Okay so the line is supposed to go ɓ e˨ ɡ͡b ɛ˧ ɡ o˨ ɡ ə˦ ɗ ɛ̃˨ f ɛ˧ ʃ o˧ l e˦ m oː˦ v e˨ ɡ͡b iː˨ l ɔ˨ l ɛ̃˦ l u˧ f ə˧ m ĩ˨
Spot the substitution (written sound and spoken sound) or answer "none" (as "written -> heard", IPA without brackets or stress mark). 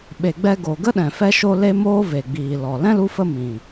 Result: none